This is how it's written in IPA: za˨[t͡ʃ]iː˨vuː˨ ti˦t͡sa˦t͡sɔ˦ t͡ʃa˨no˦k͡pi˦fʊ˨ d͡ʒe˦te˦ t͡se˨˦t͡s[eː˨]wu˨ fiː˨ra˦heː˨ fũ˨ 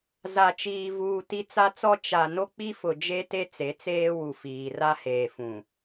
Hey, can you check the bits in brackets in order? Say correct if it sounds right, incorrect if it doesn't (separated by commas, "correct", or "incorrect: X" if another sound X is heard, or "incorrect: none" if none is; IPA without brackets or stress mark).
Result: correct, incorrect: eː˦